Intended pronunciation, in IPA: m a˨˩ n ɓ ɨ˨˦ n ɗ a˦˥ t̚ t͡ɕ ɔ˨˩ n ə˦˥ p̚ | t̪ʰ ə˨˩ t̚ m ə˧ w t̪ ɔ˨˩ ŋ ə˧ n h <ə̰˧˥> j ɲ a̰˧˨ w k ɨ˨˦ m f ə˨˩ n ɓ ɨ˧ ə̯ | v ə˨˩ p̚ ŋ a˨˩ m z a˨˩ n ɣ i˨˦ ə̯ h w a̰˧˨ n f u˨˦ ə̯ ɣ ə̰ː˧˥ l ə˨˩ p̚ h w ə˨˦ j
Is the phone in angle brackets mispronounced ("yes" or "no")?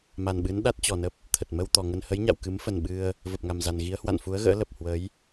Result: yes